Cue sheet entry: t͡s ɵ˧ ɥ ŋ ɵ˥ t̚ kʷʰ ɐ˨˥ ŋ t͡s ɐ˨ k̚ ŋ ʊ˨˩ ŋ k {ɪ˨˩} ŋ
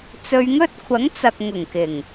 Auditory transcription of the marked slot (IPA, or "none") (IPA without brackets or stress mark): ɪ˨˩